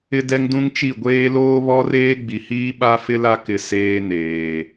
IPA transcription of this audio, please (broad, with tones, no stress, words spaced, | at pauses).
ɪ˦dɛ˦ŋdũ˦ŋt͡ʃi˦˨ ɡʷeː˦ loː˦βɔ˦reː˦ ɡ͡bi˨hiː˦ ɓa˦fɪ˦la˦kɪ˨ seː˦neː˨